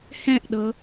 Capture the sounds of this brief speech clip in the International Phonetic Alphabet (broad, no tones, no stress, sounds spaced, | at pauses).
h ɛ̃ ʔ ɗ ɤ